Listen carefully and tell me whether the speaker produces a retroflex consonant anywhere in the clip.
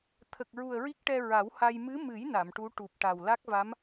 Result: yes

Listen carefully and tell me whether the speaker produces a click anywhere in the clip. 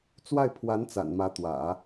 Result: no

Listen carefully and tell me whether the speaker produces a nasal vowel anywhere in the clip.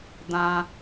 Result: yes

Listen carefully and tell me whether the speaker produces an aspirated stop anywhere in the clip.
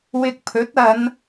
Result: yes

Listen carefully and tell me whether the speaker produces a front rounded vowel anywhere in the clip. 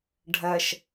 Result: no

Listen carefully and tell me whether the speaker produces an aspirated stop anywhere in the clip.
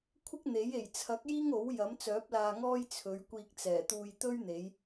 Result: yes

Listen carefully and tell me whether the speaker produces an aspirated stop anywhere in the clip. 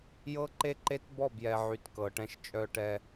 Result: no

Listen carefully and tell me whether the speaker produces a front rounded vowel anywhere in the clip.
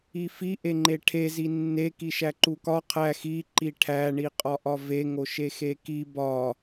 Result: no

